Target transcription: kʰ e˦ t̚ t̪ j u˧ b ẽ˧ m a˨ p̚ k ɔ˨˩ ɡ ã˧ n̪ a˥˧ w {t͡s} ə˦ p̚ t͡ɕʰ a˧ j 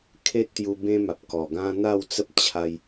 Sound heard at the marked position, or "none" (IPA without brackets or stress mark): t͡s